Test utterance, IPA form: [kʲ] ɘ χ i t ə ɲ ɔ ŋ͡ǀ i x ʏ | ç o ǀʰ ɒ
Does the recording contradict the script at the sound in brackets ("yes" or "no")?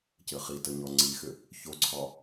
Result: yes